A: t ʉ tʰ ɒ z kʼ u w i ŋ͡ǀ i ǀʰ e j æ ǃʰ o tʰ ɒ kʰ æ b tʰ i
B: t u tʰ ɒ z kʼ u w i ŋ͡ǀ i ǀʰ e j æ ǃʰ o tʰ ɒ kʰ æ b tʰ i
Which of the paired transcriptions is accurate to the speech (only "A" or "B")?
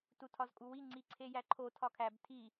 B